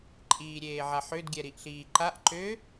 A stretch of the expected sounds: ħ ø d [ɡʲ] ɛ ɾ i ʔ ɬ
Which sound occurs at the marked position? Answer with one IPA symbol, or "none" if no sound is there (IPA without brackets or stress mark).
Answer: ɡʲ